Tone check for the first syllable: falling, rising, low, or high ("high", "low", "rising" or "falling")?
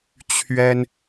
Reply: high